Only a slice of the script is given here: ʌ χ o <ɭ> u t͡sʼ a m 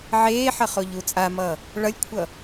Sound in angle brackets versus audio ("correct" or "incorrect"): incorrect